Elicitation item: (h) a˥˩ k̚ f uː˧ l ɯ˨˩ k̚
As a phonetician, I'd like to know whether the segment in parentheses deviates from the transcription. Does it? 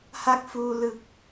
no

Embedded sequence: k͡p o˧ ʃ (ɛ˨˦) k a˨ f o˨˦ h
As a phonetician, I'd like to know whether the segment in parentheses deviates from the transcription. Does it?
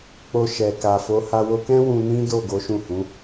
yes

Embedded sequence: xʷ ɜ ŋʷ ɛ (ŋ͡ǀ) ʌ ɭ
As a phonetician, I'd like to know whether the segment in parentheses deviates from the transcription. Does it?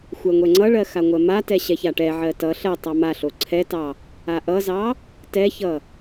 no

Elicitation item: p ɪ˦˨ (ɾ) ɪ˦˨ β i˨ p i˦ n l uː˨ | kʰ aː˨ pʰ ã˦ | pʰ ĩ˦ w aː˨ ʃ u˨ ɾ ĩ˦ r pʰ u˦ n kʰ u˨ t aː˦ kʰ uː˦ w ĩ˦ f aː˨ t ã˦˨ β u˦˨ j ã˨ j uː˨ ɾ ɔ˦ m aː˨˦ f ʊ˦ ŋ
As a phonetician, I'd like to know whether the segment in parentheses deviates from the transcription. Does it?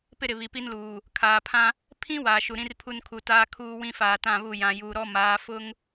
no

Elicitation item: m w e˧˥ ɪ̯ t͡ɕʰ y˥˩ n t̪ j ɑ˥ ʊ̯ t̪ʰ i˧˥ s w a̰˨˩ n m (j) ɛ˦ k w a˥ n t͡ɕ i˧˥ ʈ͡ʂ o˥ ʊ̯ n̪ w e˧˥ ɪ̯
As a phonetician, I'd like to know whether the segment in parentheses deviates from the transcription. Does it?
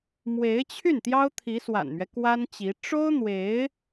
yes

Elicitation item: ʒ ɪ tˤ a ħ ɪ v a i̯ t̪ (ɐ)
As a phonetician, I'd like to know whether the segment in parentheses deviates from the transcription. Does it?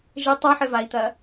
no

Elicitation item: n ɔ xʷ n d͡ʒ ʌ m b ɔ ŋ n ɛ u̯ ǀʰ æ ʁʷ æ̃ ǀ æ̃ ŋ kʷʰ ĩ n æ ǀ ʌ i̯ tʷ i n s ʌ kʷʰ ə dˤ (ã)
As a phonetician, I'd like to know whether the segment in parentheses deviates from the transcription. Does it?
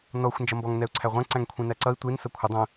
yes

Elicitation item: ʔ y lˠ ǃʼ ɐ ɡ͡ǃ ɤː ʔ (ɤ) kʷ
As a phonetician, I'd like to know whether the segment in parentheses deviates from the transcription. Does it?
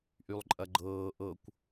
no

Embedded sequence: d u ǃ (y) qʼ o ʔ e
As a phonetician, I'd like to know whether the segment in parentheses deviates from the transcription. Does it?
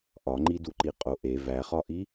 yes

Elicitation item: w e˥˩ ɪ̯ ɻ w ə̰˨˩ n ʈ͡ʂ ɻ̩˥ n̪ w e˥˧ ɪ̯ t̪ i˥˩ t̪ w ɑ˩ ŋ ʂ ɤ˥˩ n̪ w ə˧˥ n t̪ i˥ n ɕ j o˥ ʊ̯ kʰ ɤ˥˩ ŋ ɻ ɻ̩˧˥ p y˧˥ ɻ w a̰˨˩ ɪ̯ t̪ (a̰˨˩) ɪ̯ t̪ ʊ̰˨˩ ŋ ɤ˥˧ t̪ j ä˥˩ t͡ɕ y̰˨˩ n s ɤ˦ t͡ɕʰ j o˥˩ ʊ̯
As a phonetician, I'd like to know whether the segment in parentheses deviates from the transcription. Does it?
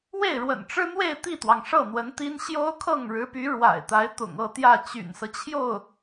yes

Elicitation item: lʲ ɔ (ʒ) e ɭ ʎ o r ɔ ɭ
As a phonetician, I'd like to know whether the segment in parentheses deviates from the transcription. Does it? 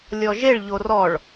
no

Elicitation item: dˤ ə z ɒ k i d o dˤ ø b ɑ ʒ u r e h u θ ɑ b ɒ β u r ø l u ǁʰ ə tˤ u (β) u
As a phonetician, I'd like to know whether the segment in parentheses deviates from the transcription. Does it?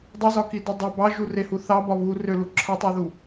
yes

